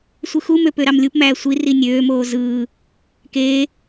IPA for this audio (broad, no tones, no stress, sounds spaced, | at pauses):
sʷ ɯ x u m ø p ø ɾ ɑ m lʲ u p m æː sʷ i r i nʲ øː m oː z ɯː | k eː